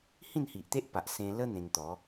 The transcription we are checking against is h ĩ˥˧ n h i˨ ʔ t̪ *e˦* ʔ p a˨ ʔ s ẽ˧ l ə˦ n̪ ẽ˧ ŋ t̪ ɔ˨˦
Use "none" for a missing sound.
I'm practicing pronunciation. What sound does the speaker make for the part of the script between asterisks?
e˦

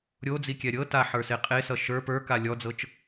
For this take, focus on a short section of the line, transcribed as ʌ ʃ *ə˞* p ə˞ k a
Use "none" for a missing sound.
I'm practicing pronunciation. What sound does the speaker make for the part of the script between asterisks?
ə˞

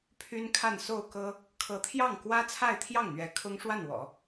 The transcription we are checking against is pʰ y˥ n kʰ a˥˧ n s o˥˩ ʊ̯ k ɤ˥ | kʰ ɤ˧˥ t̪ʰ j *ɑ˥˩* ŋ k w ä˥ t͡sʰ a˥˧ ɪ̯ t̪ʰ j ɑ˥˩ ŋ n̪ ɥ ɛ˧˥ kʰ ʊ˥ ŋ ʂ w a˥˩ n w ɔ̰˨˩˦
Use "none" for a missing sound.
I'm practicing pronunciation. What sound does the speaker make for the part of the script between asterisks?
ɑ˥˩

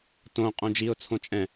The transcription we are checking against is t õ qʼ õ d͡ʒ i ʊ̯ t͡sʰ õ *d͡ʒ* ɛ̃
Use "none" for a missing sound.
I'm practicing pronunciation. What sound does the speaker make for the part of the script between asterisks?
t͡ʃʼ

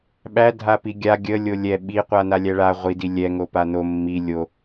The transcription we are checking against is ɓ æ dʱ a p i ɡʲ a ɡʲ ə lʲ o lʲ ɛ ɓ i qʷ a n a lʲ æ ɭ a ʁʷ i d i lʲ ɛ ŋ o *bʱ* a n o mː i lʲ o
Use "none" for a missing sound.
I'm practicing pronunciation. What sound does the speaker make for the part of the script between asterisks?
p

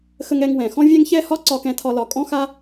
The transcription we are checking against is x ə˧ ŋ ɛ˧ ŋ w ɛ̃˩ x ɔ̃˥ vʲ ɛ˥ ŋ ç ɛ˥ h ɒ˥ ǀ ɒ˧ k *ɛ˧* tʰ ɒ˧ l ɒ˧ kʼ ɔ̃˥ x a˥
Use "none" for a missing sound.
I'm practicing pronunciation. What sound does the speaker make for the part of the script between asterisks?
ɛ̃˧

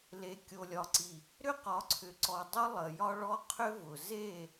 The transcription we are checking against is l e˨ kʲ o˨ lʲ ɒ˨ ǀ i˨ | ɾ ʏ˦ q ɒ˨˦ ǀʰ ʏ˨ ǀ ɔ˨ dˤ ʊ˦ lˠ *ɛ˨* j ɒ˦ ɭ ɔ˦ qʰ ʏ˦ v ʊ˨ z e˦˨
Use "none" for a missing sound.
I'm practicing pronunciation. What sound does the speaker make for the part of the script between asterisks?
ə˨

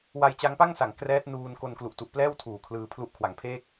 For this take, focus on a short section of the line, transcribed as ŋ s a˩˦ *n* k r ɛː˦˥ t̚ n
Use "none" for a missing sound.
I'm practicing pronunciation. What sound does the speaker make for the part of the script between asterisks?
ŋ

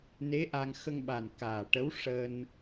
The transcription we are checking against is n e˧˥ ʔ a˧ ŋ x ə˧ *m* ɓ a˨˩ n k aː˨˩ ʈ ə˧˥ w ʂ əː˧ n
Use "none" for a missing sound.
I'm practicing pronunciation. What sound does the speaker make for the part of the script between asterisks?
ŋ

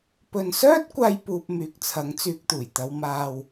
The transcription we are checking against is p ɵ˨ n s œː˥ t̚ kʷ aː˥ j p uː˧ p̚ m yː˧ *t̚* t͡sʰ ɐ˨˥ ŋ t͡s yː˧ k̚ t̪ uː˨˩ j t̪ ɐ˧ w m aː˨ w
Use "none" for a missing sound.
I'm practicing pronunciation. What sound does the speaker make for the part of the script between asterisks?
k̚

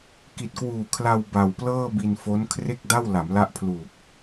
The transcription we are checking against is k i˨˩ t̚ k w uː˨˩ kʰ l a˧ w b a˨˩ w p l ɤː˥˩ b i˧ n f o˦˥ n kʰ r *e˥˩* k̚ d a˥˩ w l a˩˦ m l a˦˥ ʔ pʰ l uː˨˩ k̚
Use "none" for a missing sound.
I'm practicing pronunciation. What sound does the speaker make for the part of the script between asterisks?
e˥˩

